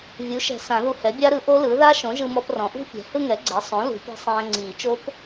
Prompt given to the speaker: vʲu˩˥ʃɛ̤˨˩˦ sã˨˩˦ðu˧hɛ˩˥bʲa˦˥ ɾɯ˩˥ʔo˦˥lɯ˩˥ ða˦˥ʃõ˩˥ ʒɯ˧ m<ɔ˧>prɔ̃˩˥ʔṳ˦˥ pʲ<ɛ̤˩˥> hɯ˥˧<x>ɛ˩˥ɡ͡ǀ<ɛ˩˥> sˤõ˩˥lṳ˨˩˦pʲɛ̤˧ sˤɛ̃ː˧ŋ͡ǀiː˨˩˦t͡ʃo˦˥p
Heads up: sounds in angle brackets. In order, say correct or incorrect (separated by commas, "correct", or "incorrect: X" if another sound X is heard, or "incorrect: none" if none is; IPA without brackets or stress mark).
correct, correct, incorrect: ŋ, correct